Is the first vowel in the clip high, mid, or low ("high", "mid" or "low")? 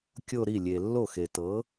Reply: mid